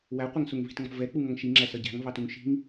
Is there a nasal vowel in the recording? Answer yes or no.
no